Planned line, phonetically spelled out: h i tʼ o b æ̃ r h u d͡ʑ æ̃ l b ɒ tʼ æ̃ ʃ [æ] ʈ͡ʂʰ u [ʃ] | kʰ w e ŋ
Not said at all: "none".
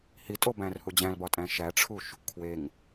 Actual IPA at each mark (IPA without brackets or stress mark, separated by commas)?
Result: æ, ʃ